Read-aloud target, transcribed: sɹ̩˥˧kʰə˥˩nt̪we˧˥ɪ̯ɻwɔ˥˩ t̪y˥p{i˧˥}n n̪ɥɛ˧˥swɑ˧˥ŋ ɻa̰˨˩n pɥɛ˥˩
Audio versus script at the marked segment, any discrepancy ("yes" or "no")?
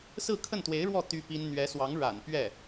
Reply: yes